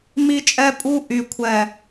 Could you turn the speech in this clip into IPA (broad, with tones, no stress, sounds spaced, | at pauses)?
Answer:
m i˦ t͡ʃʼ ɛ˦ pʼ u˦ ʔ y˨ kʷʰ ɛ˨